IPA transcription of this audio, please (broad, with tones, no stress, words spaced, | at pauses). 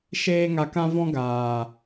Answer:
ʃeː˦ŋa˧kã˦ vɔ̃˦ɡaː˨